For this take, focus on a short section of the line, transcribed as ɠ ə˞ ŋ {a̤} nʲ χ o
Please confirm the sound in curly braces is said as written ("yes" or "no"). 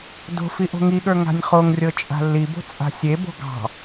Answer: yes